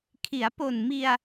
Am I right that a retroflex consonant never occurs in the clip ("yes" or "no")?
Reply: yes